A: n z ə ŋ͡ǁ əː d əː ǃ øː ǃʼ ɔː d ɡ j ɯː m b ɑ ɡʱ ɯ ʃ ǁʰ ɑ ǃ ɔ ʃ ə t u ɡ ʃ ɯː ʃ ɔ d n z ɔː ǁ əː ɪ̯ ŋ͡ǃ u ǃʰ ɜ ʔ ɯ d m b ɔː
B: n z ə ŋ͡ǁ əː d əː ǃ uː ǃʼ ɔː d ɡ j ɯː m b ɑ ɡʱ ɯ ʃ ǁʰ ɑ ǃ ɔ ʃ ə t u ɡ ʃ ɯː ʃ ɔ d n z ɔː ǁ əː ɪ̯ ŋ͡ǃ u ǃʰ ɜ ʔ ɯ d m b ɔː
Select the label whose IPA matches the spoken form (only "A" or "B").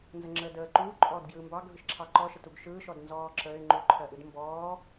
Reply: B